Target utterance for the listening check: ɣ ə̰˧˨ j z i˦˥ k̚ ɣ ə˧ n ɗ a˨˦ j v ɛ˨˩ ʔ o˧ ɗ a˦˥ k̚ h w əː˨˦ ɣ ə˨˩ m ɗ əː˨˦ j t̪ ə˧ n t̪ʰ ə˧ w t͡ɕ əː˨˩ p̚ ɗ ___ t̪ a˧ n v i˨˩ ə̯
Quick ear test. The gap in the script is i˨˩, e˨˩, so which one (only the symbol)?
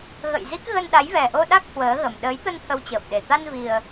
e˨˩